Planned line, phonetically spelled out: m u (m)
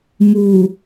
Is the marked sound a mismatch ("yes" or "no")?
yes